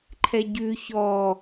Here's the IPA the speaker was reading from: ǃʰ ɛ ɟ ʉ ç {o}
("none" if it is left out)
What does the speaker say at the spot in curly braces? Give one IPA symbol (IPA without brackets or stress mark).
ɔ